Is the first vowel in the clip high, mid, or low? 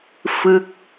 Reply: high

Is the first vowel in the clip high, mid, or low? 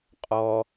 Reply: mid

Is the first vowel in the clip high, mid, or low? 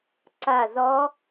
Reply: low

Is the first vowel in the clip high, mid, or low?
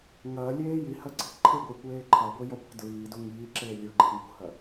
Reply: low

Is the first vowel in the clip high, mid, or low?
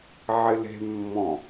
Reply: high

